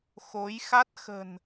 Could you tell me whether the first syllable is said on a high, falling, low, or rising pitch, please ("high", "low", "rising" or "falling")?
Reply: rising